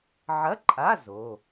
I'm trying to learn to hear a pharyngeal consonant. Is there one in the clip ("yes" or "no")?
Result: yes